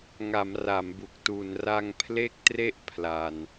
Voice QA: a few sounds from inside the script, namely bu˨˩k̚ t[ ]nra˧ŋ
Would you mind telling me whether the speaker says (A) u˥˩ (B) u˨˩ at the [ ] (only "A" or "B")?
B